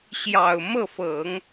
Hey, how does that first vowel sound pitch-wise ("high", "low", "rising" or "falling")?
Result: low